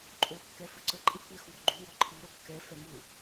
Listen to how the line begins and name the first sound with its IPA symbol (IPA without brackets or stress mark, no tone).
ǃʼ